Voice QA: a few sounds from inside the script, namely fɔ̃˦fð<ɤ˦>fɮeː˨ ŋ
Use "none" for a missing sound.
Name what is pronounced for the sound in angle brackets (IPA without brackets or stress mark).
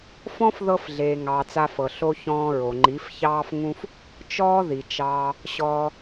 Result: ɤ˧